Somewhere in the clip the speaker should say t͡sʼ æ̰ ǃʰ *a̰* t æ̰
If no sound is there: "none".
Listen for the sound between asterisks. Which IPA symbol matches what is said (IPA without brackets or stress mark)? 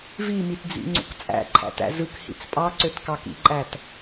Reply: æ̰